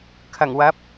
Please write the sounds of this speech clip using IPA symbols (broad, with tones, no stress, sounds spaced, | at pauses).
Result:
kʰ ɐ˨˩ ŋ w ɐ˨˥ p̚